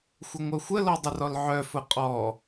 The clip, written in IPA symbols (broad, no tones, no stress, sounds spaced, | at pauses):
xʷ ə ŋʷ œ xʷ ə l ɔ dˤ ə r ɔ l ʕ œ f ʊ qʼ ɔ